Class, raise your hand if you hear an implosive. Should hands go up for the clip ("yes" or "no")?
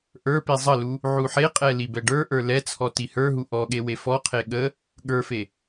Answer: yes